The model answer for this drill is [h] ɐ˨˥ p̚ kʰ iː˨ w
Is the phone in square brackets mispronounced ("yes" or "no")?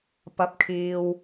yes